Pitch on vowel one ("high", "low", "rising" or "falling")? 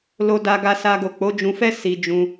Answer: high